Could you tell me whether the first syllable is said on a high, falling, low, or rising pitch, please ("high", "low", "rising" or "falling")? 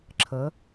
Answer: rising